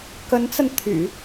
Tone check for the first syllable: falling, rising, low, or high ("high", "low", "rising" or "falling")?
rising